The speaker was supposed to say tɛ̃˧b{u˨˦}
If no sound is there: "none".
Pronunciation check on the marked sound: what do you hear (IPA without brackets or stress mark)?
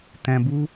u˦